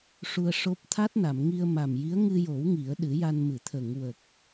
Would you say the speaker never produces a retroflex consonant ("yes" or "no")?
no